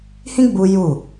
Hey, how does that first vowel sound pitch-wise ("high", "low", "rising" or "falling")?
high